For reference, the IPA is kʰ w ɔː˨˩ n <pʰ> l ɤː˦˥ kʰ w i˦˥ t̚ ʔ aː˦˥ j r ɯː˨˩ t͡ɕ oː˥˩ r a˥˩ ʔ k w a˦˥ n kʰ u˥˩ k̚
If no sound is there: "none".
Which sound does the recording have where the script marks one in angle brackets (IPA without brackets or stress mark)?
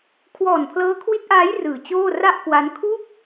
pʰ